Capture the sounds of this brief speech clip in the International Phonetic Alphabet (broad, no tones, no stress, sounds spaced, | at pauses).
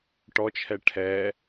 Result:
ʈ ɔ t͡ʃʰ ɛ ʈʰ ɛ